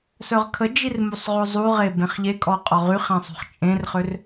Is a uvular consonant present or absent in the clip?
present